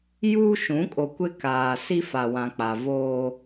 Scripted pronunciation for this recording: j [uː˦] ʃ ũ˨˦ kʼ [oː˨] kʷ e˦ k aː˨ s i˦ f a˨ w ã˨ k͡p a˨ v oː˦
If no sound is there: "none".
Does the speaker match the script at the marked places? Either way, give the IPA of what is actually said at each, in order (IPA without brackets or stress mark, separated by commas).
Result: uː˦, o˨